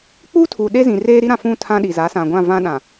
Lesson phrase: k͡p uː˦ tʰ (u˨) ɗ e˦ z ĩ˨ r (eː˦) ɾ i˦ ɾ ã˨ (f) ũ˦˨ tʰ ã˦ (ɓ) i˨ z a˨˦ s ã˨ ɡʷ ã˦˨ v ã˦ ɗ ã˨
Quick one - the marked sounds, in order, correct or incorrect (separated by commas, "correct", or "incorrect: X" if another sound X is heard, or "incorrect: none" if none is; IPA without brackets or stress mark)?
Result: incorrect: uː˨, correct, correct, incorrect: ɗ